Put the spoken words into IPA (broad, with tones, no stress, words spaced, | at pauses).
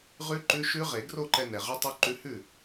ʁʉ˦˥ǃʉ˧˥˧ ʃʉ˦˥ ʁe˨˩˦ɡro˥˩ǃɛ˧ nɛ˩ʁy˦˥tˤy˦˥ǃʉ˦˥ hʉ˥˩